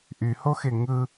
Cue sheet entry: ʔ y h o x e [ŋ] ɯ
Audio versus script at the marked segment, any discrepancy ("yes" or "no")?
no